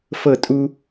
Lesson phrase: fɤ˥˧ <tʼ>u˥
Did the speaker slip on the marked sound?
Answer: no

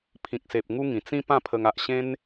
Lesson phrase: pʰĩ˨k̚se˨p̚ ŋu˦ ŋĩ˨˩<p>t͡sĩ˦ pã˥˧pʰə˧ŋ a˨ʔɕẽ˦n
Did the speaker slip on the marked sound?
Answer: yes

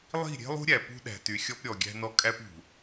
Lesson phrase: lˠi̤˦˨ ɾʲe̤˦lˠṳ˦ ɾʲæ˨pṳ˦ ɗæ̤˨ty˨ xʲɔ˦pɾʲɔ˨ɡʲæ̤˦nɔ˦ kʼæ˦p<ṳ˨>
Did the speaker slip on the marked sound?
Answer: no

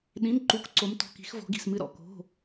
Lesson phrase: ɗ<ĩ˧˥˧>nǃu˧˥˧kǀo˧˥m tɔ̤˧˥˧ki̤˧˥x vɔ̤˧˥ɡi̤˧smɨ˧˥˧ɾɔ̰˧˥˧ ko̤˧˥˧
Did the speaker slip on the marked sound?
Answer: no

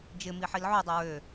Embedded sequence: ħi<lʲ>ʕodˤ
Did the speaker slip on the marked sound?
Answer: yes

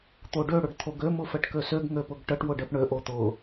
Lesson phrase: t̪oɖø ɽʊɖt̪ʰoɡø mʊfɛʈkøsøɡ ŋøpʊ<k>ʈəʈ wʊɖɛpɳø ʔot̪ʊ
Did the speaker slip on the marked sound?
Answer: yes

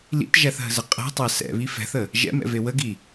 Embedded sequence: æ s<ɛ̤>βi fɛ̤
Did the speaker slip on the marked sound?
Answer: yes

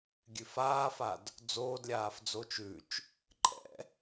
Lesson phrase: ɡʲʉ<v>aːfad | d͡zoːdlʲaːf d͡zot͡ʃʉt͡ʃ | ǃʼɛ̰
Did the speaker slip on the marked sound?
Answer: yes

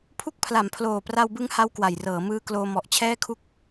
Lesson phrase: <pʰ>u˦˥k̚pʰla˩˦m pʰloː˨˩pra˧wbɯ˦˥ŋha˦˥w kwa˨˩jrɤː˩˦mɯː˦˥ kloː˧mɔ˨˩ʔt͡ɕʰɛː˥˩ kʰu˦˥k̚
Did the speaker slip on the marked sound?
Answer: no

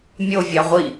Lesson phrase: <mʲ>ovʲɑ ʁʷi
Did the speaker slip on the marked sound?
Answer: no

